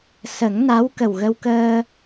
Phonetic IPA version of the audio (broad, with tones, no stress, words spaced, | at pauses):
sə˨˩˦ŋna˧˥w kə˨˩wɣə˧wkəː˧